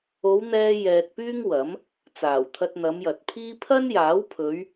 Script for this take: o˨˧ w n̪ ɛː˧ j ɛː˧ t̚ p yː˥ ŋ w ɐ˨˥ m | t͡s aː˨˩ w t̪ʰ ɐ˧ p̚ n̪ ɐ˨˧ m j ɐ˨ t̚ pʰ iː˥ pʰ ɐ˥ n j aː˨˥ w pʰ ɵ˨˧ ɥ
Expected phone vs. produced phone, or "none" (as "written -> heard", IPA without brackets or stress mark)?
p̚ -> t̚